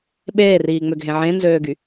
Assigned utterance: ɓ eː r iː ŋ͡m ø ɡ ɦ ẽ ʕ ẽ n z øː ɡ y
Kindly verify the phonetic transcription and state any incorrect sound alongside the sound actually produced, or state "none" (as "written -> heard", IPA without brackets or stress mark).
none